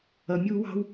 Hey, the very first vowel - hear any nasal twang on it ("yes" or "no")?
no